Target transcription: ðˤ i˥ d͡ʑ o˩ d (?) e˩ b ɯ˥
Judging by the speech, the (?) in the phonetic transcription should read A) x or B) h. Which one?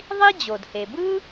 B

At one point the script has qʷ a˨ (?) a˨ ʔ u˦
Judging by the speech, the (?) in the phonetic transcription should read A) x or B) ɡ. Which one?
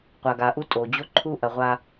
B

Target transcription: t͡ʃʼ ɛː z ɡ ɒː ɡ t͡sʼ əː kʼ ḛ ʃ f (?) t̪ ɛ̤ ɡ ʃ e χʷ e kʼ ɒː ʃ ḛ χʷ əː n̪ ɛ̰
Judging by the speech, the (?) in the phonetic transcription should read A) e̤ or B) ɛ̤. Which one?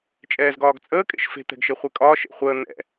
A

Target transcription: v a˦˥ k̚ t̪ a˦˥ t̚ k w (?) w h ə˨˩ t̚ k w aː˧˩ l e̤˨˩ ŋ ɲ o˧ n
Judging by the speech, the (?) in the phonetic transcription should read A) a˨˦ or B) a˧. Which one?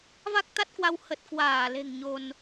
B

